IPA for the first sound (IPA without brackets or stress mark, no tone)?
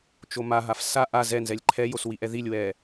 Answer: t͡ʃ